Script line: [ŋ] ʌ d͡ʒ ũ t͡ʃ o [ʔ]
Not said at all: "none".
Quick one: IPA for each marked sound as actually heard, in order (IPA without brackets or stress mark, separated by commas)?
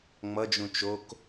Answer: ŋ͡m, k